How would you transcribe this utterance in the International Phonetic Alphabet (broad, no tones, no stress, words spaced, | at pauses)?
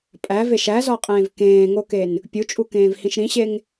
pʼæveʃ æzɒqʼẽːv kẽːŋoken | pʲut͡ʃʼukẽːvhĩʃ ɾĩɕeŋ